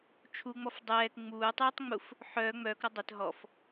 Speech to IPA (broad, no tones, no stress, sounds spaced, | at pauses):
t͡ʃʰ u ŋ͡m ɔ f dˤ ɛː k ŋ͡m uː tˤ uː tˤ ŋ͡m u f | ħ œː ŋ͡m œː k ɾ ɔ dˤ ɛ t ɦ ɔ f